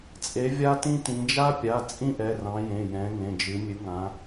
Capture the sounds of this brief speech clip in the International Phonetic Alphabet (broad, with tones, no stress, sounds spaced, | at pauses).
t͡sʼ e˨˦ vʲ a˥ t ĩ˥ t ĩ˨˦ d͡ʒ a˥ pʲ a˩˧˩ t͡sʼ ĩ˥ ʔ ɛ˩˧˩ r ɑ̃˨˦ j ẽ˩˧˩ j ɛ̃˨˦ ŋ ẽ˩˧˩ d͡ʒ ɨ˨˦ mʲ ɨ˨˦ ŋ ã˨˦